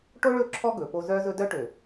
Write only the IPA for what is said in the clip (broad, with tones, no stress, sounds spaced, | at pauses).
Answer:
ʈ o˦ ɭ ɵ˦˨ ǁʰ ɔ˦ ɡ ɵ˨ p o˦ z œ˦ z ɵ˦ d œ˦ ʈ ø˨